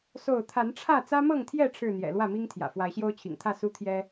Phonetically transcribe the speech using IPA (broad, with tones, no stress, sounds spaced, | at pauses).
s o˥˨ ʊ̯ t̪ʰ a˨˦ n ʈ͡ʂʰ ä˥˨ t͡s ä˦ m ɤ˥˨ ŋ t̪ʰ j ɛ˥˨ ʈ͡ʂʰ ɻ̩˥˨ n̪ j ɛ̰˨˩ l w ä˥˨ m i˦ ŋ t̪ʰ j ä̰˨˩ f w a˨˦ ɪ̯ ɕ j o˦ ʊ̯ t͡ɕʰ ḭ˨˩ ŋ t̪ʰ ä˥˨ s u˦ t̪ʰ j ɛ˦